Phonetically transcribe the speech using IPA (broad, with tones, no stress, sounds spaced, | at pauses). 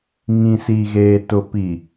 ŋ ĩ˨ s iː˨ ɣ eː˨ t ʊ˨ p i˨